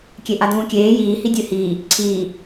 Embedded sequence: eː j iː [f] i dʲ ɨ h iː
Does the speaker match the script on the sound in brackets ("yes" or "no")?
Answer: no